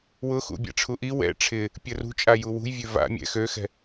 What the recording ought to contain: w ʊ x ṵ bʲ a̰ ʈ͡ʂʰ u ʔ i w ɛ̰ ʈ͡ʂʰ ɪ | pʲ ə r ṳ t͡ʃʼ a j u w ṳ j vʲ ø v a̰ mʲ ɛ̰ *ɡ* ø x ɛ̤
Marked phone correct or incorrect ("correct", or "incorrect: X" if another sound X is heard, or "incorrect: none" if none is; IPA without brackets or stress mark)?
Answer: incorrect: x